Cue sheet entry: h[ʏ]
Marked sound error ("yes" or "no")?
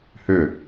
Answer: no